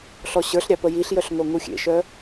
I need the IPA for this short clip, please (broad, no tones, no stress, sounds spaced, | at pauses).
ɬ ɔ ɕ ə˞ ɬ ɾʲ ɑ p ə j i ɬ j œ ɬ ŋ o ŋ u xʲ ḛ ʃ œ